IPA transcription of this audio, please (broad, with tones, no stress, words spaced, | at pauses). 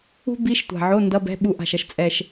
ṳ˥ bi˧˥˧ʃtʷa̤˨˩ʕo˧˥˧ ndʌ˧˥˧bɛ̤˧˥˧ ɓu˧˥ʔa̤˨˩ʃʌ˧ʃ t͡sʼɛ˨˩ʃ